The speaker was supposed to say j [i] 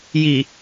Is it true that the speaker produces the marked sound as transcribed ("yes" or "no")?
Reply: yes